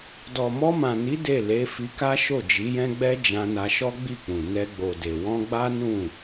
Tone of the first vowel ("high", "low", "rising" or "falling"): low